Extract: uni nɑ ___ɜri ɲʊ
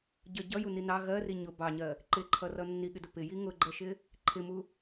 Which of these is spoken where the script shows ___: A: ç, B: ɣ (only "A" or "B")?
B